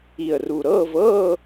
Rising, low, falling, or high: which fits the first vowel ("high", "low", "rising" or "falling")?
low